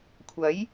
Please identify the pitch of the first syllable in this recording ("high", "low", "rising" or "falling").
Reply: rising